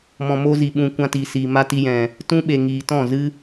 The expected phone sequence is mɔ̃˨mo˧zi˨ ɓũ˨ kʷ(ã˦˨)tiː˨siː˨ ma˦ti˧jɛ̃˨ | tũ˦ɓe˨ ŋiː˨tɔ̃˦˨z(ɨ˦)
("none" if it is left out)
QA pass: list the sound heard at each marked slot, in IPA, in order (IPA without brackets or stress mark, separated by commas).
ã˧, ɨ˦